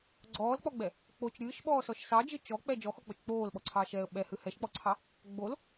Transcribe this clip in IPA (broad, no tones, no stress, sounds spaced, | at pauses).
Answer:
ɡ͡ǀ ɔː l k͡p ɔ ɡ͡b ɛ | k͡p o t͡ʃ ɾʲ ɨː ʃ ɓ ɔː s ɔ ʃ s ɑ d͡ʒ ɨ t͡ʃ ɔ k͡p ɛ d͡ʒ ɔ x ɔ k͡p o t͡ʃ k͡p oː l ɓ ɔ ǀʰ ɑː ʃ ɛː ə̯ ɓ ɛ h ɨ h ɛ ʃ k͡p ɔ ǀʰ ɑ | ɡ͡b o l